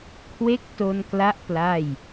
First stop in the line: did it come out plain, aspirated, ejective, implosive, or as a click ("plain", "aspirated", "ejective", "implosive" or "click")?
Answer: aspirated